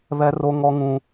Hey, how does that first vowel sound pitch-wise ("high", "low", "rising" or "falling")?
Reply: high